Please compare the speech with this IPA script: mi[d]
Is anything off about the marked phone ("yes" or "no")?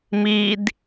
no